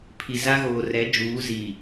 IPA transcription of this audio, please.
pʰi˨za˦ɣoː˨ rɛ˨˦ d͡ʒuː˨˦ziː˨

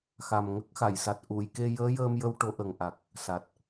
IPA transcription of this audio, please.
xa˨˩mŋə˦˥k̚xa˨˩˨jsa˨˩t̚ ʔu˨˩˨jke˧ jəː˧˥jəː˧m jə˧w ʈo˧˥ʔə˨˩ŋ ʔa˨˩k̚ | sa˨˩t̚

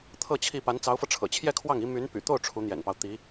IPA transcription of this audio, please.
t̪ʰɤ˥˧t͡ɕʰi˥˩ pa˧˥nt͡sɑ˧˥ʊ̯fɤ˧ ʈ͡ʂʰɤ̰˨˩t͡ɕʰjɛ˥˧kʰwɑ˥˩ŋi˧˥ my˧˥n py̰˨˩t̪o˥˩ʊ̯ ʈ͡ʂʰu˧˥n̪jɛ̰˨˩npɑ˦ʊ̯ t̪i˧˥

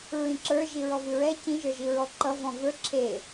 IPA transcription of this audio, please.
ɹĩǁə˞ ʒiɹɔvɨɹɛ cĩ ʒə˞ʒiɹɔǃʌ vɔ̃və˞ ǁʰe

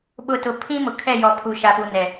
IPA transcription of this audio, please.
ɓʊ˨tʊ˨ pʰĩ˦ mʊ˨kʰɛ˦˨ jɔ˨pʰu˨ʃa˨pu˨ nɛ˨

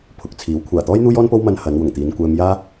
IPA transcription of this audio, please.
pʰʊ˨k̚t͡sʰiː˨˥w kʷʰaː˨˩t̪ɔː˥j n̪uː˥jɔː˥npo˥w mɐ˧n hɐ˨˧nwʊ˨˩ŋt̪iː˨˧n kʷɛː˧mjaː˥

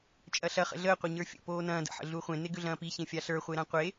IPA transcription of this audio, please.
t͡ʃʼɐɬɐ χə̰ɮəː qʷeɲə˞fʲə̰ poːnɐ̃ː də̰ ħə̰ɮuχʷẽ neɡʏɮɐ̃ːpi çẽfʲaɬə˞ χʷeɾãqʷe

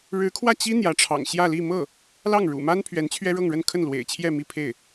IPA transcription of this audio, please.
ɻɻ̩˧˥kʰwä˥˩ t͡ɕi˥ n̪jä˧˥ʈ͡ʂʰɑ̰˨˩ŋ ɕjä˥˧li˥˧ mɤ˥˩ | lɑ˥˩ŋɻṵ˨˩ma˥n pʰɥɛ˧˥nt͡ɕʰɥɛ˥ɻɤ˥˧ŋɻə˥˧n kʰə˥˩nlwḛ˨˩ɪ̯t͡ɕʰjɛ˥˧ mi˥˧pʰe˥˩ɪ̯

